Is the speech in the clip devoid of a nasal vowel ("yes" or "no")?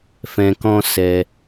no